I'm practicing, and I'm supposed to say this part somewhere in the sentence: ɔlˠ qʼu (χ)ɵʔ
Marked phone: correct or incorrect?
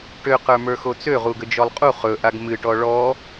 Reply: correct